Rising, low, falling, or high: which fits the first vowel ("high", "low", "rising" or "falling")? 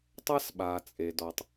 high